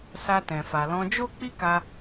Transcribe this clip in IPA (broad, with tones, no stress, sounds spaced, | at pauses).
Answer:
s a˧ t ɛ̃˨ f a˨ l ɔ̃˧ d͡ʒ o˦ k͡p i˦ k a˧